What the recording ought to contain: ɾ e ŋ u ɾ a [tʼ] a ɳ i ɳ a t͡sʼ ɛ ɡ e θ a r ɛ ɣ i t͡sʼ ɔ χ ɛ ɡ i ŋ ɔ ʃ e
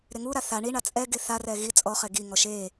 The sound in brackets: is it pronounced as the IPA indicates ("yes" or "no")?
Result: no